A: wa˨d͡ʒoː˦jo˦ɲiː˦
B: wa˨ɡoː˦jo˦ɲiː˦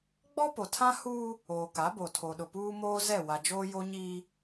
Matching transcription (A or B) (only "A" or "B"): A